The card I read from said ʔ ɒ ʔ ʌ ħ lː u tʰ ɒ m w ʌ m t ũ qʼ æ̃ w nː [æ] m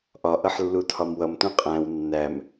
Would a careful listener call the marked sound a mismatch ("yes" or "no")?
no